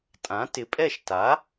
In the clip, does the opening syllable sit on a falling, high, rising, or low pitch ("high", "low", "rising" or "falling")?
rising